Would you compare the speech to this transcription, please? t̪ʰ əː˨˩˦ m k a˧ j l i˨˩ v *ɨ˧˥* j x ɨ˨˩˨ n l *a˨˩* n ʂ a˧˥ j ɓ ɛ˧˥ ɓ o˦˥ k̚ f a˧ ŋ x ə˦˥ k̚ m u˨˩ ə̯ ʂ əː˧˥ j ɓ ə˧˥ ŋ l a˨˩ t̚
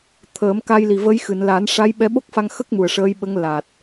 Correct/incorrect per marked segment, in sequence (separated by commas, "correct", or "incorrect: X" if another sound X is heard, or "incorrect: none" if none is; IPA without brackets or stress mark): incorrect: ə˧˥, incorrect: a˨˩˦